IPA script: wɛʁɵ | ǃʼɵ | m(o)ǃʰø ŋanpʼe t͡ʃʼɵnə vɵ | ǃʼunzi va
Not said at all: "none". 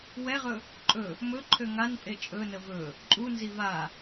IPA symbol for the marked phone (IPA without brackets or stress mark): ɵ